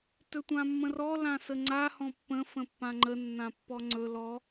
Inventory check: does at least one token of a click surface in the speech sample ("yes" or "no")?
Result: yes